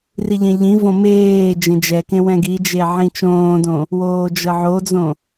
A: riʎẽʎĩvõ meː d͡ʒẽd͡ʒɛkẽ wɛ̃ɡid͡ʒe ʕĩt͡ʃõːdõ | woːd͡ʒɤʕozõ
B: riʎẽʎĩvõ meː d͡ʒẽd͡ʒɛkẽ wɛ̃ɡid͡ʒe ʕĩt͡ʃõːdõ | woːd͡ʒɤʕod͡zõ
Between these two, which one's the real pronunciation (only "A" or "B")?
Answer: B